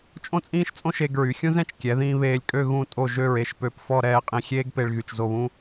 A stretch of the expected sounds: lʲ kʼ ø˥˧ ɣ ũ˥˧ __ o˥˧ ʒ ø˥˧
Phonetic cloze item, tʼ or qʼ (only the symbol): tʼ